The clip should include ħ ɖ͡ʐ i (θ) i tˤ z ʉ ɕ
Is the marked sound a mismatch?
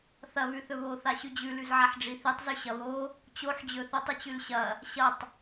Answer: no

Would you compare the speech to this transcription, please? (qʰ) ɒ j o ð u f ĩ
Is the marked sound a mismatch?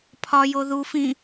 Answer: yes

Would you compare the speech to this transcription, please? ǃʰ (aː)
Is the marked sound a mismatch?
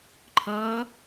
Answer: yes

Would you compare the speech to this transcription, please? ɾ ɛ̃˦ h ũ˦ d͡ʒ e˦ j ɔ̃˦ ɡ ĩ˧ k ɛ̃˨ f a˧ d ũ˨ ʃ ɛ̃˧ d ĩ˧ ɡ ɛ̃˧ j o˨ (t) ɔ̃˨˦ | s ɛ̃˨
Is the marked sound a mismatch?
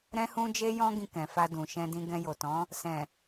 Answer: no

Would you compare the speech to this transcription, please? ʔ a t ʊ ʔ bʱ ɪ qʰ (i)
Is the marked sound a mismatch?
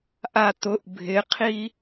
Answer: no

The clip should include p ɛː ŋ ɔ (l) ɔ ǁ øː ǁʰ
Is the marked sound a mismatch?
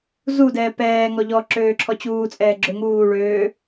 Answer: yes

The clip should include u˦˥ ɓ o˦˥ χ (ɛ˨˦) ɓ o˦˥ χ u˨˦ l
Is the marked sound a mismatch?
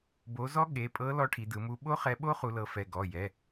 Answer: no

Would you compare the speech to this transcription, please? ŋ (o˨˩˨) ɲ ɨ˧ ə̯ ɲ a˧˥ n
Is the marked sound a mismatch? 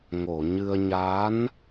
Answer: no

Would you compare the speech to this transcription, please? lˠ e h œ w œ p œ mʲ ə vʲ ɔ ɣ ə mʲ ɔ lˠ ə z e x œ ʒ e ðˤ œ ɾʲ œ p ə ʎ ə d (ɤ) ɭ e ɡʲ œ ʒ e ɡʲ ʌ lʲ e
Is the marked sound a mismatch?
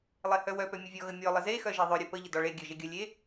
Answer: yes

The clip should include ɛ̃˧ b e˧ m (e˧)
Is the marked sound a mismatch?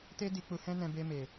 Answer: yes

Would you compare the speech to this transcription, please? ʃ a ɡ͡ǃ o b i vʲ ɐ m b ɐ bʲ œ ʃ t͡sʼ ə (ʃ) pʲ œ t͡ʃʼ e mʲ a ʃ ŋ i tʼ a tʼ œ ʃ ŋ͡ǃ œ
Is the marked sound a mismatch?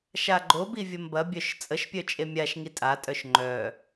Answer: no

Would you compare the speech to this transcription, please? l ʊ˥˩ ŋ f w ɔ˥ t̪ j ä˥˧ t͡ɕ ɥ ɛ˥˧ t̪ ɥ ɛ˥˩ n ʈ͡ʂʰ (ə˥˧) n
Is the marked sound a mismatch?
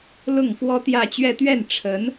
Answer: yes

